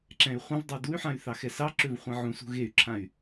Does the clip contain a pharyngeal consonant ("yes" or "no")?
yes